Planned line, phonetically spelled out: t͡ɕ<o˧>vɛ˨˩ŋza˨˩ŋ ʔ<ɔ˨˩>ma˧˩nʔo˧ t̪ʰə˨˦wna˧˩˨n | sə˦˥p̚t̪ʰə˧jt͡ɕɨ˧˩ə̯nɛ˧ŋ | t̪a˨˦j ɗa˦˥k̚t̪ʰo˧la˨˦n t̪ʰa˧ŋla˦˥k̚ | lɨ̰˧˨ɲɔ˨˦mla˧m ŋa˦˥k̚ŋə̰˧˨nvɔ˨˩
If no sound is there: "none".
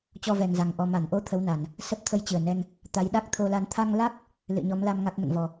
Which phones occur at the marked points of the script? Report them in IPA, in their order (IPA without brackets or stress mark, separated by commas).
ɔ˧, ɔ˨˩